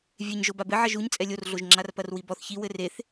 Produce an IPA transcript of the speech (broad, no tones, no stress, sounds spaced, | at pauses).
vʲ e ɲ ʒ o b a b ɘ ʕ ɐ ʒ u ɲ t͡sʼ ɛ lʲ o r ɮ o ʒ ŋ͡ǁ a r p ɐ r w i b ɔ θ ç i w ɘ r e θ